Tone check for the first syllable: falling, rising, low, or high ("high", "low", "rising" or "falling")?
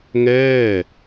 falling